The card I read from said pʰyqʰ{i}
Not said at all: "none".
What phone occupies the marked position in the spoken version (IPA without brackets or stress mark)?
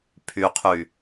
y